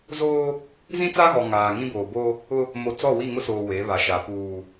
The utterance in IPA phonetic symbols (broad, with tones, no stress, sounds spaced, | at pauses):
z oː˦ | z ĩ˦ t͡s a˦ ɣ ɔ˨ ŋ aː˨ ŋ ĩ˦ b oː˨ b o˦ | ʊ˦ | m o˨ t͡s ɔ˦˨ w i˦˨ ŋ ʊ˦ s oː˨ w e˨˦ β a˨ ʃ a˨ p uː˨